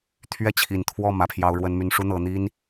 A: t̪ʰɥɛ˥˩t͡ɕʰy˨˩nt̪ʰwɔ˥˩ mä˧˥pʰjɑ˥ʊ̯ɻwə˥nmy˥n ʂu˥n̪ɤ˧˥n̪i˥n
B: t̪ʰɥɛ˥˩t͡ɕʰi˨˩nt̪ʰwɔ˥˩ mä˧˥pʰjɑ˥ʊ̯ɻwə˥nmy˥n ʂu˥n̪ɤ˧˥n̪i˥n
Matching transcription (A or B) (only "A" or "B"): B